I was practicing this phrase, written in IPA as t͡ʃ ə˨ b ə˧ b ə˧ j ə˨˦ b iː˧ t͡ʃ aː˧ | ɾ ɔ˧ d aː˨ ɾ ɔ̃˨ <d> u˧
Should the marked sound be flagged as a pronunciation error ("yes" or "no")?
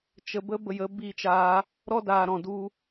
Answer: no